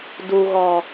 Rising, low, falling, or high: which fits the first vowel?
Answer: low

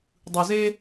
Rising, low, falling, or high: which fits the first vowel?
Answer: low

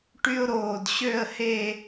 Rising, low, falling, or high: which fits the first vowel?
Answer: high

